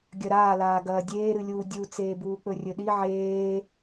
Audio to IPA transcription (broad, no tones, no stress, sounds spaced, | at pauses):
ɡʲ ɐ ɾ aː l aː ɡ ɐː dʲ eː ɾ ɨ lʲ uː dʲ u t͡s eː b uː k͡p ɵ rʲ ɵ ɗ i ʕ eː